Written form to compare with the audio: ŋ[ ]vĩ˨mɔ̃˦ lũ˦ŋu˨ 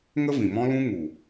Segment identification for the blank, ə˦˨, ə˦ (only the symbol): ə˦